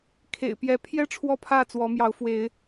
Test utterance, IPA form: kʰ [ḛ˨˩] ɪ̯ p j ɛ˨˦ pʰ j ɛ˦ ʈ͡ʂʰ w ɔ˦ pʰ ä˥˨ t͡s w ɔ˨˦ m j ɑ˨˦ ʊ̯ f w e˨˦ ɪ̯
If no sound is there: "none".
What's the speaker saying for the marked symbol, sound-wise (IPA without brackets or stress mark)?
ḛ˨˩